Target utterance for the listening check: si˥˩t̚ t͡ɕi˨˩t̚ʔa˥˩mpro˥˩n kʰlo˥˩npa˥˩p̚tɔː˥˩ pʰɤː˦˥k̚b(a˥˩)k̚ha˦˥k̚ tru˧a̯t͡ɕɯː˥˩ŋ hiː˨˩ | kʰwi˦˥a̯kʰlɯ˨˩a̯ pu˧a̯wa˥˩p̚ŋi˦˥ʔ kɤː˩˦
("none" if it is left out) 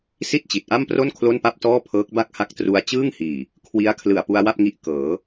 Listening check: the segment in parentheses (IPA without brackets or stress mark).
a˥˩